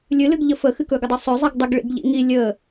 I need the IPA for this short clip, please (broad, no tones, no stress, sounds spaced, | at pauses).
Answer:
lʲ ɨ l ɨ ɡ ʎ ə f ə x ɨ k ɵ ɡ ə dˤ ɵ sˤ ʏ zˤ ɨ ɡ dˤ ə ɡ ɭ ḭ ɡ ʎ ḭ ŋ i lʲ ə